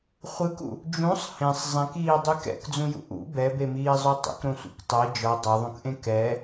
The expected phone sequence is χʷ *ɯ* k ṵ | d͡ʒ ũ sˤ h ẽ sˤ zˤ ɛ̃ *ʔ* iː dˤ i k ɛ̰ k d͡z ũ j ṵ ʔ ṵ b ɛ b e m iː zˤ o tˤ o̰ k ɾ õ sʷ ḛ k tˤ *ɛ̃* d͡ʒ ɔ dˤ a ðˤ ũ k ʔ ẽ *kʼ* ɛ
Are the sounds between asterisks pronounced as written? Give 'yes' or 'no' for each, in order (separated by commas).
yes, no, no, no